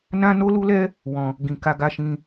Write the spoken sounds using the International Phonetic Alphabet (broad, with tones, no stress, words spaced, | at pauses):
nã˦no˦lu˦lɛ˦ | wɔ̃˧ | ɡĩ˧ ka˧ɡa˧ʃĩ˧